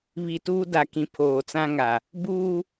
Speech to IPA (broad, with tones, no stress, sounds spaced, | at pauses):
β i˨ t uː˦ d a˨ k ĩ˨ pʰ oː˨ t͡s ã˦ ŋ a˨ | b uː˦